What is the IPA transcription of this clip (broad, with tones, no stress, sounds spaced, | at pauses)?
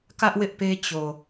k ä˦ ʔ w ɪ˦ ʔ p e˦ t͡ɕ o˨